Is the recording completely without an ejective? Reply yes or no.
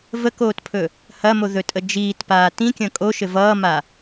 no